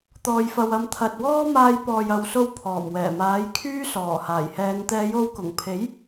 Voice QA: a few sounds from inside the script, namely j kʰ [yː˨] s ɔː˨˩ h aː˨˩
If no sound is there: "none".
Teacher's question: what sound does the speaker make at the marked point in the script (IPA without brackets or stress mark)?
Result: yː˥